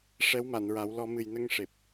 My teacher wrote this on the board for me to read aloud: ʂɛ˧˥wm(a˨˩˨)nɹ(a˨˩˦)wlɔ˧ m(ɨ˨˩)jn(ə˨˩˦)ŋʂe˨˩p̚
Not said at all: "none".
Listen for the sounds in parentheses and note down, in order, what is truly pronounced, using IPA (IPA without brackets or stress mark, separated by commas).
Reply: a˨˩˨, a˨˩˦, ɨ˨˩, ə˧